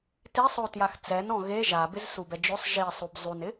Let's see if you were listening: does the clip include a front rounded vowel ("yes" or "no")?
no